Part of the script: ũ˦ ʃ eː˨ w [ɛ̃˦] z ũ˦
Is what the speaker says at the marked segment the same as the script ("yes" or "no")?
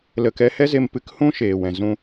no